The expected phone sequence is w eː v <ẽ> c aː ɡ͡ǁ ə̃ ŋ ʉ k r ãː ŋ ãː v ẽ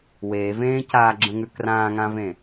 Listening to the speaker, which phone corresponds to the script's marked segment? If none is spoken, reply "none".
ẽː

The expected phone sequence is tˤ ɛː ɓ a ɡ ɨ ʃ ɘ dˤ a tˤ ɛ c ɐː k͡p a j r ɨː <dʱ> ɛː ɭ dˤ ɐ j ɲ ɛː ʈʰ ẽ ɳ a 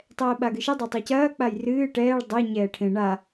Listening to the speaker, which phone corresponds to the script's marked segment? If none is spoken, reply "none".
ʈ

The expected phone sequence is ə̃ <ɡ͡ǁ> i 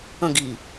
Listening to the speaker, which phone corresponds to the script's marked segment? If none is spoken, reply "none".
ɡ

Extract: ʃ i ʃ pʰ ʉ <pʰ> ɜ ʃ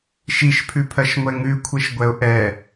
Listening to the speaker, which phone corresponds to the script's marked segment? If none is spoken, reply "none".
pʰ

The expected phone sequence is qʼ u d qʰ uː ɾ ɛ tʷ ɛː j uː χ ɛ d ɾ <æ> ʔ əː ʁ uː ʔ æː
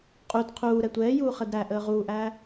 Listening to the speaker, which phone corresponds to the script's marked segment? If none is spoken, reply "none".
æ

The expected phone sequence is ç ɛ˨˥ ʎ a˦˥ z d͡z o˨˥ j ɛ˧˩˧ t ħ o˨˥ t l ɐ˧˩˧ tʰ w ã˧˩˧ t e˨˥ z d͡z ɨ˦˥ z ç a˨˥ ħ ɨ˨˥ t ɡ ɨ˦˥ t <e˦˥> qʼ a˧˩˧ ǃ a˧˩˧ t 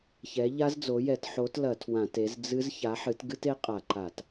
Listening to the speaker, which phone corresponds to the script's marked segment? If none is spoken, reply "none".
e˦˥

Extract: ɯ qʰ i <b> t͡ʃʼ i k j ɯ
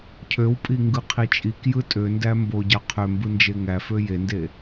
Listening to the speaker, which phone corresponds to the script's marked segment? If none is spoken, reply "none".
none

